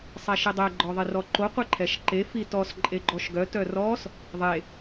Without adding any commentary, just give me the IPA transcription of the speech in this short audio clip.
sˤ ɛ ʃ i dˤ ɛ ɡ͡ǃ ɔ ðˤ e r ɔ ǃ o qʷ e ǃʰ ɛ ʃ ǃ e f i t ɔ s ǃʼ e ɡ͡ǃ ɔ ʃ ɡ œ t œ r ɔ s | ðˤ e

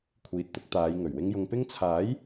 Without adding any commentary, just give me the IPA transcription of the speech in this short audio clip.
kʷʰ iː˨ t̚ t̪ ʊ˧ k̚ t̪ aː˨˧ j ŋ ɵ˨˩ ɥ w ɪ˧ ŋ j ʊ˨ ŋ p ɪ˥ ŋ t͡sʰ aː˨˥ j

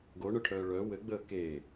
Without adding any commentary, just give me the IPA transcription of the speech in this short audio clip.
ɡ o ɳ œ ʈʰ œː ɭ œ w ɘ ɡ͡b əː k e

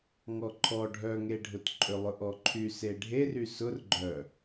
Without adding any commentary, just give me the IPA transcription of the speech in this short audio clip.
ŋ ɔ ǃʰ ɔ ɖʱ œ ŋ e ɖʱ ʊ t ǃʼ ʏ lˠ ʊ ʔ ɔ ǃʰ y s e ɖʱ e r y s ʊ r ɡ͡ǃ œ

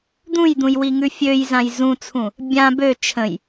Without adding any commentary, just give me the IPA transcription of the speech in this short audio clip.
d̪ ũ j d̪ ũ j w i ŋ ʉ fʲ ø j z ã j z ũ t͡sʰ ũ | bʲ ã b ø t͡ʃʰ ə̃ j

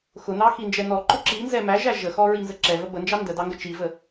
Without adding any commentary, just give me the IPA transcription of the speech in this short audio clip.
x ʊ n ɑ x i n d͡ʒ ɛ n ɔ ǃ ʊ ǁ i n z ɛ m æ ʒ æ ʒ ə x ɔ ɹ i n z ə ǁ ɛ v ə b ə n d͡ʒ ɑ n d ə d ɑ ŋ ɡ ə t͡ʃ i v ə

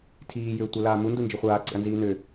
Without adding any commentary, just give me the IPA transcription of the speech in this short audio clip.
tʰ iː j ʏː tʷ ə l aː m u n d u n d͡ʒ i χʷ aː ǀ ḛ ɐ̯ n z iː n ʏ

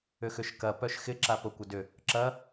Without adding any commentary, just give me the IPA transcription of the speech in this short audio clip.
ʏ x ʏ ʃ k ɐ p œ ʃ x ɪ ǁ a p o kʷ ə d ʏ | ǁ ɐ

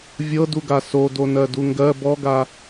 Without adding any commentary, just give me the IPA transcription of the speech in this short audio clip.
vʲ ɤ d u ɡ a s o d o n ɜ d u ŋ ɡ ɜ b ɔ ɡ a

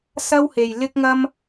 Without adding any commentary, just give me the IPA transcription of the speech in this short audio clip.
s ɐ˥ w h e˨ j l ɪ˥ k̚ ŋ ɐ˥ m

